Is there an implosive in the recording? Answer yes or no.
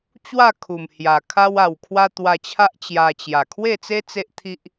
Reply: no